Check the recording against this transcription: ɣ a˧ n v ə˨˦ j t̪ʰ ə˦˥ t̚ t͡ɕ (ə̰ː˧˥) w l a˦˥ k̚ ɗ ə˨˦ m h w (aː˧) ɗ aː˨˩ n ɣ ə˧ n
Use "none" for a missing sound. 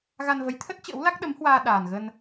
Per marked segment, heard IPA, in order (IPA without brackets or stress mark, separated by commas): ə̰ː˧˥, aː˧